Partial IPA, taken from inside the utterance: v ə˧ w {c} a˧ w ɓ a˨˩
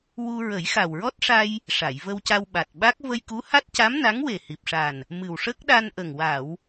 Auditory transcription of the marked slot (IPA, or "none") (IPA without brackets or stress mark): c